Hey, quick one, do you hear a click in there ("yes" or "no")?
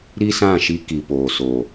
no